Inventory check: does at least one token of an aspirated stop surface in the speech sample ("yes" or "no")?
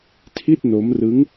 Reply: yes